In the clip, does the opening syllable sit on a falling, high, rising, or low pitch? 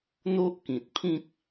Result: high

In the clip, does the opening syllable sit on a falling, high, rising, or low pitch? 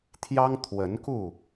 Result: high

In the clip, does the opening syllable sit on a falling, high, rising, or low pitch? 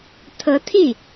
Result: rising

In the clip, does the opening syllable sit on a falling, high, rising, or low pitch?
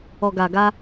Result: low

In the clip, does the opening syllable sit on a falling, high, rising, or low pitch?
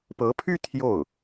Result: rising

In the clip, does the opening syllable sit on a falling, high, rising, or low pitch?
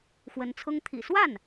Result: rising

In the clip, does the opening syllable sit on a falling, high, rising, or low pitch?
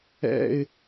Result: low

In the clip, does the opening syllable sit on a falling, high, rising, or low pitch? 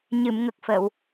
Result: low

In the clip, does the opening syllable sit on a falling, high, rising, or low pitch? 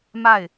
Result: falling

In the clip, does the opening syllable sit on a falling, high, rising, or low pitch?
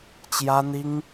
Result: high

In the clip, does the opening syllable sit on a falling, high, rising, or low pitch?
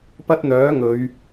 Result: high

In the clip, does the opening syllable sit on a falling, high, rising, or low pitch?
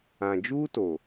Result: low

